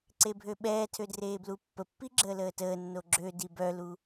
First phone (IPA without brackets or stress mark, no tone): ǀ